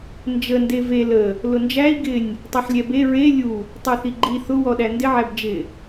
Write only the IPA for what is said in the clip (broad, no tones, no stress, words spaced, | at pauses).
nd͡ʒə ndeve lə | lʊnd͡ʒæi̯ ɡɪnʲ | tˤɛħlʲɛbe ɹe lʲu | tˤɛθiɡ͡ǃi θʊ wɔɗændɪ ʕæbd͡ʒɪ